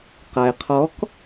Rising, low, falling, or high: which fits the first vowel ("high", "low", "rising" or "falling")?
low